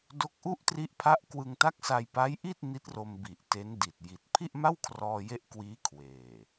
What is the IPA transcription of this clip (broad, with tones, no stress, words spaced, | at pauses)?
do˦˥k̚ʔu˥˩ʔ tri˦˥ʔpʰa˦˥ʔkwɯ˧ŋ ta˦˥k̚sa˧j pa˦˥jʔi˥˩t̚ ni˦˥t̚ro˧mbi˨˩ʔ te˦˥ndi˨˩t̚ ji˨˩t̚ pʰi˥˩ʔma˥˩wkʰrɔː˧ je˦˥ʔ kwiː˦˥ kʰweː˨˩